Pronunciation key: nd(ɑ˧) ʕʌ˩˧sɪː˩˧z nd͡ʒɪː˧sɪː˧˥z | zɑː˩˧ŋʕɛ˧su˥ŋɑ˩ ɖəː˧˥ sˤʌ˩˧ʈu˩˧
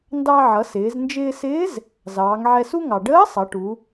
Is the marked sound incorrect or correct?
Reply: correct